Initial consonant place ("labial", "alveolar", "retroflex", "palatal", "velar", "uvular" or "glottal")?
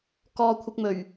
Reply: velar